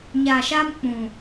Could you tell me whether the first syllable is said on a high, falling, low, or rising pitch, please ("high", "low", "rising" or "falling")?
low